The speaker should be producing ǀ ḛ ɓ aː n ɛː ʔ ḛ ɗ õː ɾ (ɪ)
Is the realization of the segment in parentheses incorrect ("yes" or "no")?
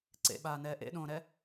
yes